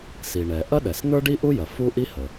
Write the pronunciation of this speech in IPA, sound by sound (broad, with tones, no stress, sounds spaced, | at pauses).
s i˩ ɳ ɛ˩ ʔ ɐ˥ ɗ ɛ˩ s n̪ ə˞˥ ɖ i˥ ʔ u˥ j ɐ˩ f u˥ ʔ i˥ h ə˩